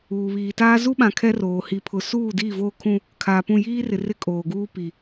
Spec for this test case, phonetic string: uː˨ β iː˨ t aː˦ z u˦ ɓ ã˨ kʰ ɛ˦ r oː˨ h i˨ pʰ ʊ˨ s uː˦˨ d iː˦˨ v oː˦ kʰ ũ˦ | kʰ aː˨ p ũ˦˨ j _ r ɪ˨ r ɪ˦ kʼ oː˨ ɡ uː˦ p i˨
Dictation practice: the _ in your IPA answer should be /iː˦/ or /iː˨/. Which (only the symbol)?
iː˦